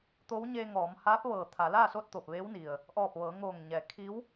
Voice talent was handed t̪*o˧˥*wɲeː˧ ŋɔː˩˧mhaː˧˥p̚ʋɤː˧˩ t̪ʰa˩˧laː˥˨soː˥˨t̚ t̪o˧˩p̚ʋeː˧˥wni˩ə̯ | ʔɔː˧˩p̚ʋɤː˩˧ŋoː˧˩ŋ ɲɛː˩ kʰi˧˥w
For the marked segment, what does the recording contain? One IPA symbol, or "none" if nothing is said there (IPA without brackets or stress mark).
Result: o˧˥